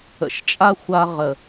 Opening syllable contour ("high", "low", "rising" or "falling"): low